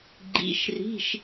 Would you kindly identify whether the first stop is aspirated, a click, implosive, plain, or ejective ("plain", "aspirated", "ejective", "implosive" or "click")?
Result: click